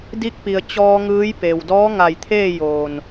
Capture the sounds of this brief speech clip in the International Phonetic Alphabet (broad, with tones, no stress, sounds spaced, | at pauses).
d i˧˥ k̚ p i˩ ə̯ t͡ɕ ɔː˧ ŋ ɯː˧˥ j p e˩ w d ɔː˧˥ ŋ a˧˩ j t̪ʰ eː˥˨ j oː˧˩ n